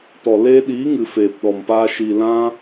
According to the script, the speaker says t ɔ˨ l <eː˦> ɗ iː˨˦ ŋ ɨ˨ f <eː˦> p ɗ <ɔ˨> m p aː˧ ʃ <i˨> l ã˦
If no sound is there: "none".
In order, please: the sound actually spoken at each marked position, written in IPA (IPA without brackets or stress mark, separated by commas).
eː˧, eː˨, ɔ˨, i˨